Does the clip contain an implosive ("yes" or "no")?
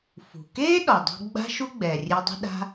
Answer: yes